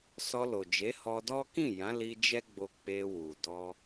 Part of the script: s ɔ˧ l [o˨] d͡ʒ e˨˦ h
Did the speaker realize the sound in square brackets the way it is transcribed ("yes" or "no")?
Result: yes